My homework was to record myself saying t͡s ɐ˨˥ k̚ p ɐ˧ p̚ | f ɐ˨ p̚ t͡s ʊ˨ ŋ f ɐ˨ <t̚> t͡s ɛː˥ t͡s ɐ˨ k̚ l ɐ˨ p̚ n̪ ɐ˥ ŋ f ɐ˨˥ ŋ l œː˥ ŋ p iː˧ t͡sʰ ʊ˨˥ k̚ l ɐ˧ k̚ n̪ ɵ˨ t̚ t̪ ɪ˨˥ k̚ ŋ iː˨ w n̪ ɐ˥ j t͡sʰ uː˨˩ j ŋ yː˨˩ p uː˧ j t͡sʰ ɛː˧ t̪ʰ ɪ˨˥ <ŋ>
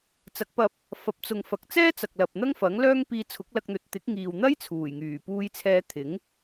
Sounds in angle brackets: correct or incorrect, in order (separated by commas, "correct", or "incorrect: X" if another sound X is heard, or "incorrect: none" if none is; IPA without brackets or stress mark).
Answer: incorrect: k̚, correct